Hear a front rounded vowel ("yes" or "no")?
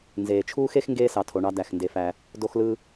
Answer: no